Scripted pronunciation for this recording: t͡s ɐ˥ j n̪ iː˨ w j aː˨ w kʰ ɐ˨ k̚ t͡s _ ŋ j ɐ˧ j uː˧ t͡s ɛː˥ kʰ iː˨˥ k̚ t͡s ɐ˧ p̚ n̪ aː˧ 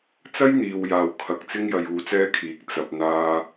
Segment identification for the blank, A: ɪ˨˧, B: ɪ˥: B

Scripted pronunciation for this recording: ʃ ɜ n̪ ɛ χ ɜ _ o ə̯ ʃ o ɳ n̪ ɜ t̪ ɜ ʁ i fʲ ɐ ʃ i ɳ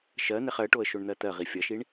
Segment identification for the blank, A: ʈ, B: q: A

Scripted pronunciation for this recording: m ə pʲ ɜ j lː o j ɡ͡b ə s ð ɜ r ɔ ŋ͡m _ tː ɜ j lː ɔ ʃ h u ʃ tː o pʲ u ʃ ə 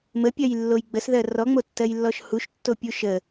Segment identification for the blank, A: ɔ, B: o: B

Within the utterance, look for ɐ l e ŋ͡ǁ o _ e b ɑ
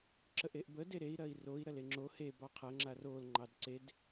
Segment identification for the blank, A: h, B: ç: A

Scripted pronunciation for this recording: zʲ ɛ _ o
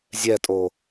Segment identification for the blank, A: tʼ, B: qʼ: A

